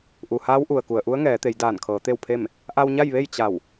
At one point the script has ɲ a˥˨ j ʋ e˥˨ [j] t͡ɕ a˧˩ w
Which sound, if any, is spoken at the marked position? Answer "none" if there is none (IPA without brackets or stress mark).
j